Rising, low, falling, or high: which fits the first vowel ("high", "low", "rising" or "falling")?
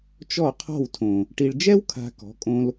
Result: falling